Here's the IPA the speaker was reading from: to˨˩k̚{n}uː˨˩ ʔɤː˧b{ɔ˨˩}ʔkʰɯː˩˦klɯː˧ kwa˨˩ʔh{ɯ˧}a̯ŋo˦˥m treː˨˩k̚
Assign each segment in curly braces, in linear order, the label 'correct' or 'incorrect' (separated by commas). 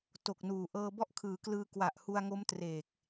correct, incorrect, incorrect